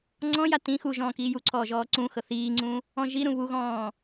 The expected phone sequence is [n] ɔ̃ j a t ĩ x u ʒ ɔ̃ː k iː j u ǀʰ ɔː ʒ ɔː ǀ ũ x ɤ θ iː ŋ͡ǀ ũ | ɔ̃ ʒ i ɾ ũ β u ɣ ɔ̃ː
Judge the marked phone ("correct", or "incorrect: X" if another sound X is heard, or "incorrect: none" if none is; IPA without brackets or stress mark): incorrect: ŋ͡ǀ